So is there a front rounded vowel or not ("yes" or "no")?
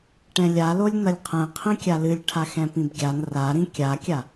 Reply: no